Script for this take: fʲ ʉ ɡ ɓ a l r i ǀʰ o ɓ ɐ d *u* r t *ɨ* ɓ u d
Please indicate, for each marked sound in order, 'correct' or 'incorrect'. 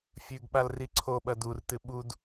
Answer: correct, correct

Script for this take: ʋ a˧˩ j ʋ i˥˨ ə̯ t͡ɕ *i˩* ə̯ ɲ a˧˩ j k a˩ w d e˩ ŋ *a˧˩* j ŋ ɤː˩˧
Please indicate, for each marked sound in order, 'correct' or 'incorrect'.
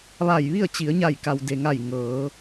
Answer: incorrect, correct

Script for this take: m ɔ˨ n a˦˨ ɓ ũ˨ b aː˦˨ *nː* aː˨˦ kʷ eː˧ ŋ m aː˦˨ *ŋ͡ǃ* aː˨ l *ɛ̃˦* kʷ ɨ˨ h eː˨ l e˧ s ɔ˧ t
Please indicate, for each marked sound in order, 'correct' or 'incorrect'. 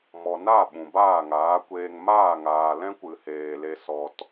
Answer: incorrect, incorrect, correct

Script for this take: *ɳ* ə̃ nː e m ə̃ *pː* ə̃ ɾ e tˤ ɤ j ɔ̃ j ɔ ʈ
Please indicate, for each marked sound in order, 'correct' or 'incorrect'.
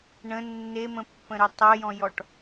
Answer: correct, correct

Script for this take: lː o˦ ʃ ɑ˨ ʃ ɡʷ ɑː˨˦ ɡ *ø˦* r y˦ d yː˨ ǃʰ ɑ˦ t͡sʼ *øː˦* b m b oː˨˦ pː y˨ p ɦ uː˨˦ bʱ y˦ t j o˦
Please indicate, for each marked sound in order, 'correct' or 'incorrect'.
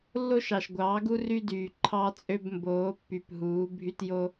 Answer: incorrect, incorrect

